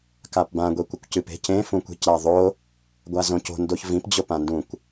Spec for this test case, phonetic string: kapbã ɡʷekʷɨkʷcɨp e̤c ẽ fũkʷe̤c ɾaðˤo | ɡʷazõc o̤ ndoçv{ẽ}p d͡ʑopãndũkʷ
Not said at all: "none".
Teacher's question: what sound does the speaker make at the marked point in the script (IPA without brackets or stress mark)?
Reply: ĩ